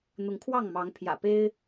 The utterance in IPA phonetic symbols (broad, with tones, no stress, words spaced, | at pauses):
n̪ʊ˨˦ŋkʰwɑ˥˨ŋmɑ˨˦ŋ pʰjä̰˨˩pe˦ɪ̯